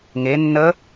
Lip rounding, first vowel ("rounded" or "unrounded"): unrounded